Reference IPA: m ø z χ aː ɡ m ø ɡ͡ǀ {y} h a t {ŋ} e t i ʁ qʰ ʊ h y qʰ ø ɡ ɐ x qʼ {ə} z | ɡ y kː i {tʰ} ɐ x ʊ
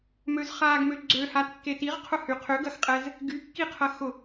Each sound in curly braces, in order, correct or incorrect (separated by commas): incorrect, incorrect, incorrect, incorrect